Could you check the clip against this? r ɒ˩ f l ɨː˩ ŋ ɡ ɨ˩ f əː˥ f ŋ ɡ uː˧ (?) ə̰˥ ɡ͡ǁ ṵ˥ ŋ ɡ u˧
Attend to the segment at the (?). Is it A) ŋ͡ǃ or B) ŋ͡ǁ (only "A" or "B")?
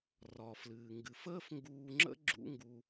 B